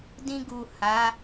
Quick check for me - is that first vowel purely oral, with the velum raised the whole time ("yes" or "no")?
no